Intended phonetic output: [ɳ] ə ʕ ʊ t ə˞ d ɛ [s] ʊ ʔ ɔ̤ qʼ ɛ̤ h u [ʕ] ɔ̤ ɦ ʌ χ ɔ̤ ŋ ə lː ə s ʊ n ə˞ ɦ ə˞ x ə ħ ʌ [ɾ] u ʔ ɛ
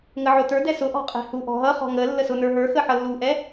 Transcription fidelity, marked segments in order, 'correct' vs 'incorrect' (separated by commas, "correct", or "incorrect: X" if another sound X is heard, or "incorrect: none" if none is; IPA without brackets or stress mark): incorrect: ŋ, correct, incorrect: ʔ, incorrect: lː